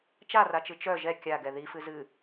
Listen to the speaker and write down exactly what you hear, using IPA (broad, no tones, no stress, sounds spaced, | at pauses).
t͡ʃ a r a t͡ʃ ɨ t͡ʃ œ ʒ ɛ kʲ a ɡ ɛ ð i f ɨ z ɨ